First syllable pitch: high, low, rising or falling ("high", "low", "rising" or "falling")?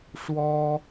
high